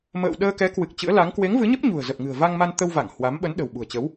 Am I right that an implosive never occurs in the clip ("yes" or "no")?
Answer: no